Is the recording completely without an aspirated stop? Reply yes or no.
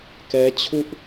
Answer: no